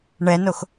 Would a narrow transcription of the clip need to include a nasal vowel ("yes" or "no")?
no